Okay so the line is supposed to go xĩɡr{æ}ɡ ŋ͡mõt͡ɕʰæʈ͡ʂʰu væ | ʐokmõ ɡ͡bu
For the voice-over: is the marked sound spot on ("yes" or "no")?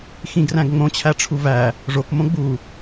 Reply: no